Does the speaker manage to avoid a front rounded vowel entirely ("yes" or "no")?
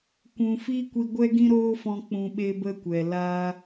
yes